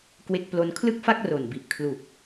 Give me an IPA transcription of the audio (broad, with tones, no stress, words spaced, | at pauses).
kwe˦˥k̚plo˧n kʰlɯ˥˩k̚fa˥˩k̚ ro˨˩n bi˨˩ʔkʰlu˨˩k̚